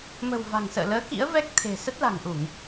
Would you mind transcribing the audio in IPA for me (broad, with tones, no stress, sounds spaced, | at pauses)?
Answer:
m ə̤˨˩ w v a̤˨˩ ŋ s ə̰ː˧˨ l əː˨˦ k ḭ˧˥ ə̯ v ɛ˦˥ k̚ t̪ʰ e̤˨˩ s ə˦˥ t̚ l a̤˨˩ ŋ ʔ u˧˩˨ ŋ